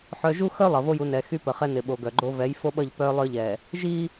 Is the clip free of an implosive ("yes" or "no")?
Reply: no